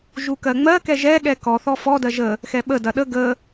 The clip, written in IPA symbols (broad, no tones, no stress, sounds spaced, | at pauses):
ʒ u k ɜ ŋ͡m ɜ k ɛ ʒ ɛ ɠ ɛ k ɔ θ ɔ f ɔ d ɜ ʒ ə | x ɛ ɓ ə d ɐ ɗ ə ɡ ə